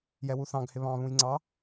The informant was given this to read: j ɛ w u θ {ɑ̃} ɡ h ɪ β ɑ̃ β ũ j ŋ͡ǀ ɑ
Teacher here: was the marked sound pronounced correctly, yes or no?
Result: yes